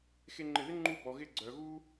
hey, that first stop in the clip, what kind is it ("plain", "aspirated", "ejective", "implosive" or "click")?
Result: click